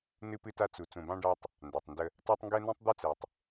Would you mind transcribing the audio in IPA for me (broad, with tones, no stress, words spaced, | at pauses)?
nɨ˦pɨ˦ta˦ t͡su˨ t͡sũ˨bɑ̃˦ɖɑ˦tˤ | nda˨tˤndə˦ | tɑ˦tˤŋɡɛ˦nũ˦tˤ d̪u˦t͡sɛ˨tˤ